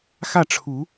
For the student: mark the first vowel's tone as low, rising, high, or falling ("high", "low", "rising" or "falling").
falling